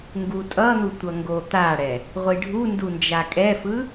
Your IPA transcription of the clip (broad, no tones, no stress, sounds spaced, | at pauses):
ŋ ɡ u tʼ ʌ n̪ u tʷ ʌ ŋ ɡ o t̪ a ɽ ɛ | ʁʷ i ɖʱ u n d u n d͡ʒ a kʼ ɛ f ɯ